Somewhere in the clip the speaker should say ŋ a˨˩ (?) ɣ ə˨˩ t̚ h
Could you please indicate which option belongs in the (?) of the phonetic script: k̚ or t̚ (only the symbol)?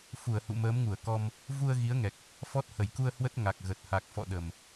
k̚